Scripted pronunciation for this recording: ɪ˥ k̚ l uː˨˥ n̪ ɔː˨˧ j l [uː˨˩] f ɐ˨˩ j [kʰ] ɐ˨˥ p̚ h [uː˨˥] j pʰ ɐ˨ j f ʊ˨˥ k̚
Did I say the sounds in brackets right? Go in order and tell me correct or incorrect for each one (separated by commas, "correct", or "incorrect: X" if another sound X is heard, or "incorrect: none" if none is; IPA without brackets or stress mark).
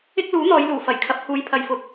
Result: correct, correct, incorrect: uː˨˧